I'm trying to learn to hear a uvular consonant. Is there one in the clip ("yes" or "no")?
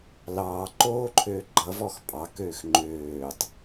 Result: no